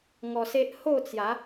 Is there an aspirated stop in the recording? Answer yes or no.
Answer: no